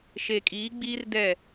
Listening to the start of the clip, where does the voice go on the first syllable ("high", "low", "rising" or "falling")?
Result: low